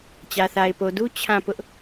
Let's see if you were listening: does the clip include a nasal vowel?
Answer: yes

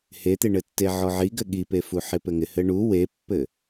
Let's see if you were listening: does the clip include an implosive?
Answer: yes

